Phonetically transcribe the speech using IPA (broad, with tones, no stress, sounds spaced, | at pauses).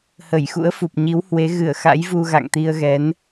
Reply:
h ə˧˩ j x ṵ˧˥ ə̯ f u˨˩ p̚ ɲ i˨˦ w h w e˨˦ ɣ ɨ˧˩ ə̯ x a̰˧˥ j v u˧ ɣ a̰˧˨ ŋ t̪ i˧ ə̯ ɣ ɛ˨˦ n